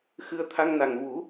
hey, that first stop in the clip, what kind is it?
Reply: aspirated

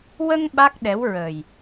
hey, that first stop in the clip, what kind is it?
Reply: implosive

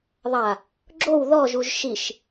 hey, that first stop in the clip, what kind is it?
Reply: click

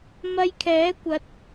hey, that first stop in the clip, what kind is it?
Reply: aspirated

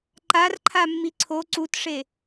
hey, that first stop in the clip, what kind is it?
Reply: click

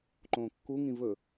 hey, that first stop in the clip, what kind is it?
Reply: click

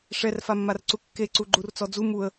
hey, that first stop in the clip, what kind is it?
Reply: click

